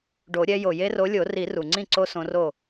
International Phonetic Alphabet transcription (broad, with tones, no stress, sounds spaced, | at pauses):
ɖ o˨˩˦ ɾʲ ɛ˨˦ j o˩ j e˦ r o˨˦ lʲ o˨˩˦ r i˨˩˦ r u˩ ŋ͡ǀ ĩ˥˩ ǀ o˦ s õ˨˦ r o˥˩